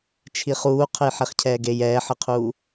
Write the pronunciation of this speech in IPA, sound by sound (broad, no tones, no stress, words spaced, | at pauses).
t͡ʃʰiχuː qʰəjħeχcʰɛːɡej ɛːħəqʰuː